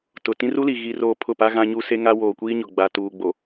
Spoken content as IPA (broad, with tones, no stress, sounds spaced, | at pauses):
t ʊ˨ t ĩ˦ r u˦ l i˨ ɣ i˦ r oː˦ pʰ ʊ˦˨ p a˦ ɣ ã˦ ɲ u˦ s e˦ ŋ a˦ w oː˨ kʷ iː˦ ɲ ʊ˨ ɡ͡b a˨ t uː˨ ɡ͡b o˨